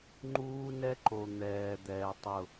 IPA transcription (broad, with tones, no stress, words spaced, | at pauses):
ŋ͡ǃuː˦ nɛ˦ǃo˨ n̪ɛː˨d̪ɛː˨ tˤʊ˦˨